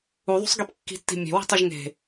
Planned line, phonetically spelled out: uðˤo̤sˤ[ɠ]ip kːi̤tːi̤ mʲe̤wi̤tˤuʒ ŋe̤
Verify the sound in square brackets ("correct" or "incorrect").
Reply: incorrect